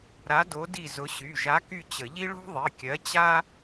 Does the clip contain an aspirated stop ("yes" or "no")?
no